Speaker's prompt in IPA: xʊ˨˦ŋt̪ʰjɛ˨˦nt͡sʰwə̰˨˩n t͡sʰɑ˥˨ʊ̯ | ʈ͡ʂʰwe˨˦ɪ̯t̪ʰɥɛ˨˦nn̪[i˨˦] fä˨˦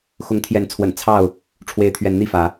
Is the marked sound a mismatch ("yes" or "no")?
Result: yes